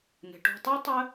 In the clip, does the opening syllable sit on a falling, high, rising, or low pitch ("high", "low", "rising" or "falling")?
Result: low